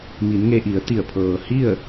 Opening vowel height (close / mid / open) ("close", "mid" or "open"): close